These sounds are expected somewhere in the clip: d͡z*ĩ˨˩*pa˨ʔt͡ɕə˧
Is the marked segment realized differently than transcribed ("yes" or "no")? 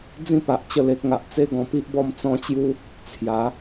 yes